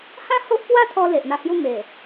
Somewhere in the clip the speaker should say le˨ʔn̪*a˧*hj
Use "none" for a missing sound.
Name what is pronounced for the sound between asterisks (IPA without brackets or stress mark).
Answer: a˧